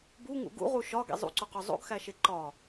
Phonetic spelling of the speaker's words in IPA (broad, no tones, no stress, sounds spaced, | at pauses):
b u ŋ ṵ ɡ ṵ ʁ u ʃ ɒ ɡ ḭ zˤ ṵ ǀ o q o zˤ o̰ ɡ x æ ʃ e ǃ ɒ